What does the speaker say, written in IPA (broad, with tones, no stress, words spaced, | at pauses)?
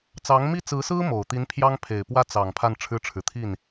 t͡sɑ˧˥ŋmi˥˩t͡sɹ̩˧˥sɹ̩˥ mo˨˩ʊ̯t̪i˧˥n pʰjɑ˥ŋ pʰe˨˩ɪ̯pwä˥˩ t͡sɑ˨˩ŋ pʰa˥˩n ʈ͡ʂʰɻ̩˥ʈ͡ʂʰɻ̩˨ t̪ʰi˥˩n